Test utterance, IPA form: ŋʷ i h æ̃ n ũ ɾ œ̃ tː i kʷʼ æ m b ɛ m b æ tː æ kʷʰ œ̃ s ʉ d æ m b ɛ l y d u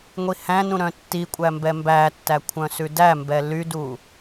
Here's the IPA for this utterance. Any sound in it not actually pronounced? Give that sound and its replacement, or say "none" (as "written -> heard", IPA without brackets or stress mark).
none